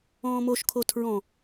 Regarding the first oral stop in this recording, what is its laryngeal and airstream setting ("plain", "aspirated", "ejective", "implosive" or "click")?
aspirated